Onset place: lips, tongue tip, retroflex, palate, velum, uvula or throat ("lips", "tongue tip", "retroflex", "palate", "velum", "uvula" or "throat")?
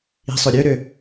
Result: tongue tip